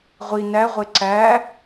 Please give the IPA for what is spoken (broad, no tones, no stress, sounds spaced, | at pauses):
ʁʷ i n æ ʁʷ e ǀ æ